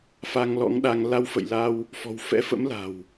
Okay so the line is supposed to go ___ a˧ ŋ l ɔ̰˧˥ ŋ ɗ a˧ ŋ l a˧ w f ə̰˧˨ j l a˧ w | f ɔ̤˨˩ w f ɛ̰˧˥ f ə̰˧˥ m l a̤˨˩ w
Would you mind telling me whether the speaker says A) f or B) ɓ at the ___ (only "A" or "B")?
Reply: A